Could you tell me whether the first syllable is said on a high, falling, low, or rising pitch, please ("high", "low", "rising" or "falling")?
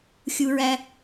high